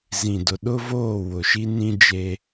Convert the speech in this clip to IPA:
z ĩ˨ d ʊ˨ ɗ ʊ˦ v oː˦˨ w ʊ˨ ʃ i˦ n ĩ˦ d͡ʒ e˦

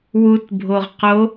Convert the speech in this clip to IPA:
w u t bʱ o ʁ q o

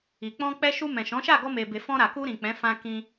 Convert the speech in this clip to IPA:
i˨ k͡p ɔ̃˧ k͡p ɛ˧ ʃ u˧ m ɛ̃˨ ʃ ɔ̃˨˦ ʃ a˦˨ ɡ ɔ˧ m e˨ b e˨ f ɔ̃˧ ɾ a˨ k u˧ ɾ ĩ˨ k͡p ɛ̃˨˦ f ã˧ k ĩ˧

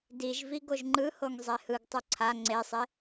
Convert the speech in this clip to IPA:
d i ʒ v i ɡ o ʒ ŋ͡ǃ ɯ h o ŋ zˤ e h ɯ ɡ tˤ u ǀʰ a ŋ͡ǀ e sˤ e

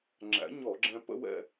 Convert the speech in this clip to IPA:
ŋ͡ǁ æ̰˨˥ ɲ ɔ˧˩˧ ɡ͡ǁ ɛ̃˧ p ə̰˥˧ w ɛ̰˥˧

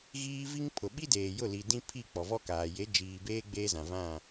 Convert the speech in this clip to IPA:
ɣ iː˦ v i˦ ŋ pʰ ʊ˨ ɓ i˦ d eː˨ j ʊ˦˨ l i˨ d ĩ˦ pʰ i˦˨ k͡p ɔ˨ v ɔ˦ k aː˨ j e˨˦ d͡ʒ iː˨ b eː˦ ɡ͡b eː˦ z ã˨ v ã˦˨

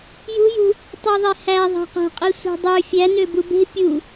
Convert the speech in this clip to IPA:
j ṳ j ṳ | tˤ i ðˤ e h æ ðˤ æ̤ q æ̤ qʼ i sʷ e̤ dˤ ø fʲ æ n ø b u b e̤ pʲ u

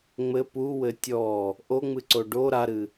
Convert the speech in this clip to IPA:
ŋ͡m ɘ p u w ɘ tʲ ɔ | ʔ o ŋ͡m ɨ ǀ o ɖ o ɾ a ɾ ɨ

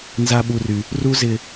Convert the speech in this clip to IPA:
n z a˦ ɓ u˦ r y˦ | r u˦ z ɪ˦

